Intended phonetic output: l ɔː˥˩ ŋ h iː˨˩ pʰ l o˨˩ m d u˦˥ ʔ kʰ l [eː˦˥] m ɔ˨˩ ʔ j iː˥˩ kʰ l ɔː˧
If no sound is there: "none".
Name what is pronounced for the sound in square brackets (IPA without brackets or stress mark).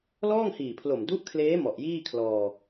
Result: eː˦˥